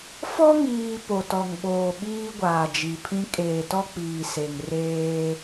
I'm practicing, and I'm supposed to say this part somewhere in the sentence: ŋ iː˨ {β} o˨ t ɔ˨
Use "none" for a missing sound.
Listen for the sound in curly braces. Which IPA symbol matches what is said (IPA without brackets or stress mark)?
p